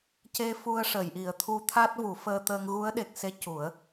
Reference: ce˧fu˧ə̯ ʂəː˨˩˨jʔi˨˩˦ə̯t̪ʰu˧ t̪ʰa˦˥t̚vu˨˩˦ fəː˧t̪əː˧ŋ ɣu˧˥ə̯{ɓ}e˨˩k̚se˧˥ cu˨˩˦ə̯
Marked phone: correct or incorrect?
incorrect: ɗ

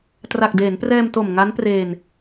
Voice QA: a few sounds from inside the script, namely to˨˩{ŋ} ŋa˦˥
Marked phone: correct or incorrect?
incorrect: m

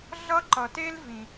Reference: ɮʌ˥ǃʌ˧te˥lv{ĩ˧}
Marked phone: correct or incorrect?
correct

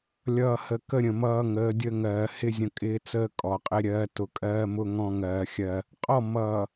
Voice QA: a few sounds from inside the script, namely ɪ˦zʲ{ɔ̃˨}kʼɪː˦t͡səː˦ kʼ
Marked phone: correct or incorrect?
incorrect: ə̃˨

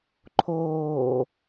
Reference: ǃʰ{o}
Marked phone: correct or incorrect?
incorrect: oː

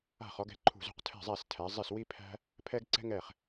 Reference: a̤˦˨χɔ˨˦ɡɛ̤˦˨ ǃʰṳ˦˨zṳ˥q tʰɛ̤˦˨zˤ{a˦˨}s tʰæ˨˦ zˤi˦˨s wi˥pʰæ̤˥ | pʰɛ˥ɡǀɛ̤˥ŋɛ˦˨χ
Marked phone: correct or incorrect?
incorrect: æ˦˨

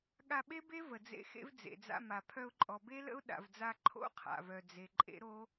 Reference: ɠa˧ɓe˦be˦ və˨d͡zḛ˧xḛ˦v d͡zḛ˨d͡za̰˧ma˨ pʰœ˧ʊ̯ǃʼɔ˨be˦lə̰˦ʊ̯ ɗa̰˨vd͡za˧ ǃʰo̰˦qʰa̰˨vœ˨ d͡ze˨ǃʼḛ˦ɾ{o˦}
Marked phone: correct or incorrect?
correct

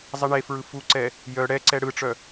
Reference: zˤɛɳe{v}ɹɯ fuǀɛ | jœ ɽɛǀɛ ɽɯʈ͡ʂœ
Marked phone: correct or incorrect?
incorrect: f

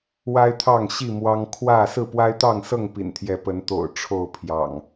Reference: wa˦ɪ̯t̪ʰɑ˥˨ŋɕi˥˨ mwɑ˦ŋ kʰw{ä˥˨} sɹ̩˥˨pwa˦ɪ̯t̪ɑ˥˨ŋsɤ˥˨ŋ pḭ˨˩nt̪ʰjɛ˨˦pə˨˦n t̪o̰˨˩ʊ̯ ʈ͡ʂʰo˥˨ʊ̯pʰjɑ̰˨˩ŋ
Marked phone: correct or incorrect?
correct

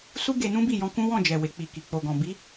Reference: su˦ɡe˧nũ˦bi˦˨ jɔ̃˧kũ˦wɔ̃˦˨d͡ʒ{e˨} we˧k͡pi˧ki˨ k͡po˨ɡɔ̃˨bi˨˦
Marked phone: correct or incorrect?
incorrect: ɛ˨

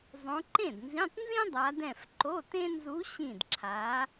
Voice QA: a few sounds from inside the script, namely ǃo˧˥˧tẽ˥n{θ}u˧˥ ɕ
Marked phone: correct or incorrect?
incorrect: z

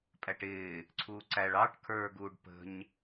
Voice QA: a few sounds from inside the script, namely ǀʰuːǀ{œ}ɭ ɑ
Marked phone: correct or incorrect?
incorrect: æ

